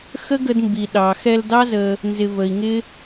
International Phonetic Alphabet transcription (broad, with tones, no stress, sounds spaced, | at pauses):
x ə˦ ɡ ə˧ d m b i˨ ɗ ɑ˨ x ɛ˧ l d ɑ˦ z ə˧ | n z ɪ˨ v ə˨ i̯ ŋ ɪ˦